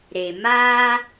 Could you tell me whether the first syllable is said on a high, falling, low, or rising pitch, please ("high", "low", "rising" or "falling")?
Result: low